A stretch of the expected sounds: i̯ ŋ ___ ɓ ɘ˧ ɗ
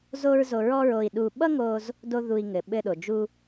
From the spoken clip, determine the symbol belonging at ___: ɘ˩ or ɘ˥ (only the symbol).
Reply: ɘ˩